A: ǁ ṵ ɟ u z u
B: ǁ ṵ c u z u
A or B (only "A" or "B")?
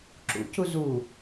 B